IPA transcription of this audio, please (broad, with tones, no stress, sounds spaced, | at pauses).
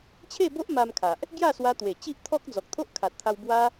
t͡ɕʰ e˥˧ b o˦ ʔ m a˧ m kʰ a˨ ʔ | ɡ j a˥˧ s w a˧ t̪ w e˨˩ t͡ɕ i˦ ʔ t̪ʰ ɔ˦ k̚ d͡z ɔ˨ k̚ t̪ʰ o˦ ʔ kʰ a˨ t̚ t̪ʰ a˧ w b w a˦